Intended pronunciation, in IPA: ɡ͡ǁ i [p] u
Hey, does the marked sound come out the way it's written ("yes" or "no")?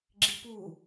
yes